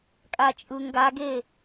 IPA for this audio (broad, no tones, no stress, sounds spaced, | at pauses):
kʼ a t͡ʃʼ ɯ ŋ ɡ a ɡ e